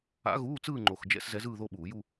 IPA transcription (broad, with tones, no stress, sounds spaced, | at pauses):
a̰˧˥ ɣ uː˧˥˧ t͡s ɯː˥˧ ŋ͡ǃ o˨˩ x d͡ʒ ɛ̰˥˧ s z ɛ˧˥ z ɯː˥˧ ð o˥˧ ɓ uː˧˩˧ j u˥˧